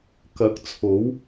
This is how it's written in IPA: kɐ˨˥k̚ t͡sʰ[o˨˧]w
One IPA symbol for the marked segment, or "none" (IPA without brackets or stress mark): o˨˥